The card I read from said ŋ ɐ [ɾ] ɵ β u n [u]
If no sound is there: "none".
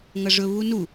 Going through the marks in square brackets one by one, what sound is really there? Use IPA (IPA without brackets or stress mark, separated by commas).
ʐ, u